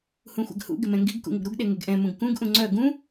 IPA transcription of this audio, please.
hũxʷɛ̰ɡhṵ ɡɪmɛ̃ŋɡiɡ kṵŋɪɡɾuɡ ɗeŋeɡʔɛ̃ mũɡkũɡ ʔũŋ͡ǀœ ɡũ

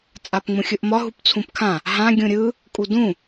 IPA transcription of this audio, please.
t͡sʼapŋ͡mũxʲɯʔmɒ ɦupt͡sʰũpkʰã | ɦã ɡʲũɾʲɯ | kʼudũ

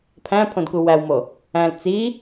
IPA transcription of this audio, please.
pʰæ̃pʰõdku wæwmo | æ̃l t͡si

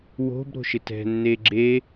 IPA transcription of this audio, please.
wo̤b ɾo̤ʃɪtɛ̤ nːeɡ͡ǁe

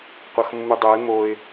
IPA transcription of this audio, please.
qʷʌxmːudˤoɪ̯ moɪ̯

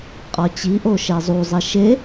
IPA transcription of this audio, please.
qʼɒt͡ɕiʔo ʃezˤuzˤi ʃe

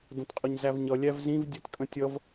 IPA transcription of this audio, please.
də̃tqʼʊɲzævɲʌ lʲævzĩv dʲɛtkʼə̃tʲʌv

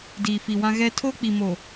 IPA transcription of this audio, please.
diː˨fi˨wã˦ ɣɛ˦ tʰoː˦k͡pi˨mo˨

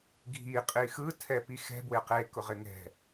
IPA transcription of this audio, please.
ɡʱi qʼixɯ tʰɛpixɛ̤ bwɪqe kʊʁɪŋɛ̤

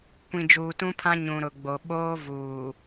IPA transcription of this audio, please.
kʷĩ˨d͡ʒuː˨tũ˦pʰã˦ ɲũ˨ɾʊ˨ɡ͡bo˨ ɓoː˦ vuː˨

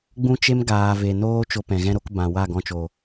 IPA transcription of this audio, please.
ɡ͡bũ˦t͡ʃe˦mɡaː˨ ve˨ noː˦ t͡ʃo˧pɛ̃˨ɣɛ̃˦ɾo˦k bã˨wa˦˨ ɡɔ̃˧t͡ʃo˨

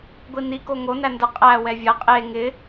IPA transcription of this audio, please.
ɡʷini koŋo nændə qʼæ wɛvʲɐ qʼe ŋɪ

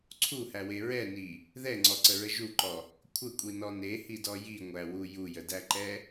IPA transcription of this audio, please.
ǀʰuhæwe ɹɛni | ðɛŋ͡ǀɔǀəɹə ʒuǃɔ | kʷʰəkʷʼinɔ nehidɔ jiŋʷæwu jujədæǃɛ

